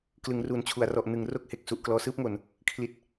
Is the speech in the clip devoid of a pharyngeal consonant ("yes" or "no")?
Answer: yes